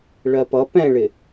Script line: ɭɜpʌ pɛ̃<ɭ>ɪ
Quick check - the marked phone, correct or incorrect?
correct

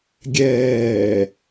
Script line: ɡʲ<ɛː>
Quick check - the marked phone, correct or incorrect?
correct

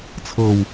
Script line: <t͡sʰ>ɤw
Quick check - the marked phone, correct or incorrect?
correct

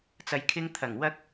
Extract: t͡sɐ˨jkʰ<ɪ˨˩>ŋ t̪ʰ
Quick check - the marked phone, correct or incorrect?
incorrect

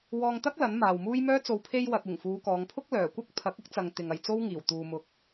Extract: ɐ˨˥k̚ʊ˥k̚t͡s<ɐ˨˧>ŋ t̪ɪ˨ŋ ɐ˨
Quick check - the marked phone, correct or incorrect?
incorrect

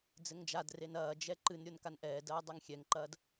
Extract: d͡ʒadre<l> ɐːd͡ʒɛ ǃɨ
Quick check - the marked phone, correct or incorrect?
incorrect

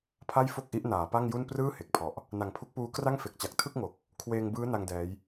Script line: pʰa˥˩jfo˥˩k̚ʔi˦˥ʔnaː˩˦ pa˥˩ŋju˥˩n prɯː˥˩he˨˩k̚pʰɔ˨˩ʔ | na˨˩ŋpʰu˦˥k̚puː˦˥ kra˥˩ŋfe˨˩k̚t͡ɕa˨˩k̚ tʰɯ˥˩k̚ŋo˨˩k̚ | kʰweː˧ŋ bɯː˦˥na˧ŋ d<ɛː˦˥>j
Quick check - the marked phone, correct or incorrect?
correct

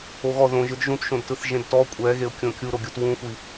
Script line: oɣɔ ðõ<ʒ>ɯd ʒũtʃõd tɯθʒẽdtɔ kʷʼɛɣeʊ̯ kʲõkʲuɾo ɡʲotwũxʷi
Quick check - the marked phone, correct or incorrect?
correct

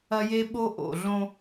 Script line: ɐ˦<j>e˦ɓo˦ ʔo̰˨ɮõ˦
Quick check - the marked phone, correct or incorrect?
correct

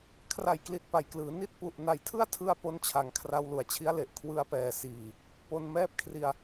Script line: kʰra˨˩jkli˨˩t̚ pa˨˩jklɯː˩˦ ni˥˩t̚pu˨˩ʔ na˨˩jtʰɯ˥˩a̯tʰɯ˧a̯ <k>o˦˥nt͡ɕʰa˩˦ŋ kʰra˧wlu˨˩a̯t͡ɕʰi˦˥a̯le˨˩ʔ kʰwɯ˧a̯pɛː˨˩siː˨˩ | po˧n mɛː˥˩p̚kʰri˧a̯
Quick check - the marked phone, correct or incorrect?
incorrect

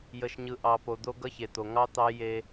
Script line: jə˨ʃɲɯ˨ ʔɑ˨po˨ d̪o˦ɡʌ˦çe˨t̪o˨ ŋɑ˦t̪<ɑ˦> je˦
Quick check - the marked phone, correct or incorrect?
correct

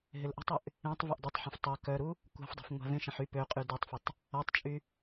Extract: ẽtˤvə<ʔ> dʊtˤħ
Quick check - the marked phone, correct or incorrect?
correct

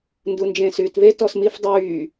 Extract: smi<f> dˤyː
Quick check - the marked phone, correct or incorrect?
correct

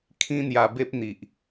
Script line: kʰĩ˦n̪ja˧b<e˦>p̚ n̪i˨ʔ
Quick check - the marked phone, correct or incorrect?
correct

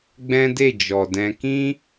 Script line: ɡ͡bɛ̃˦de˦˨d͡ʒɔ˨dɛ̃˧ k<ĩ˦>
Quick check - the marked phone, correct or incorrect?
correct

